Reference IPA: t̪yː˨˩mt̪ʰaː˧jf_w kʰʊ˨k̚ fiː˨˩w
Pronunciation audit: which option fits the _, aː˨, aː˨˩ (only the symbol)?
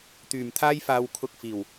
aː˨